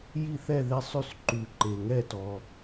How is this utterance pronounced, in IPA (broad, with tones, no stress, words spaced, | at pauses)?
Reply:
ji˥˨θɛ˥˨ðe˥˨sˤʉ˥˨s ǃʉ˨ǃe˨ŋɛ˥˨tɔ˨